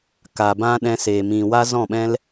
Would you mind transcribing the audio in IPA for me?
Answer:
k aː˨ b ã˦ ɗ ɛ̃˧ s eː˨ m ĩ˨ w a˦ z ɔ̃˦˨ ɓ ɛ̃˦ l

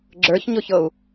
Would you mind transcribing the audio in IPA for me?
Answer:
ɡ͡ǁ ə˞ ç ɲ ʊ ç ɤ u̯

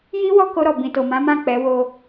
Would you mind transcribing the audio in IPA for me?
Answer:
j i˦ w ɔ˦˨ k o˧ ɾ ɔ˨ b ĩ˨ t o˨ m ã˨˦ m ã˦˨ k͡p ɛ˨˦ w o˧

